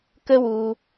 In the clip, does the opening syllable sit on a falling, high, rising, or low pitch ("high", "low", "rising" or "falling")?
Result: high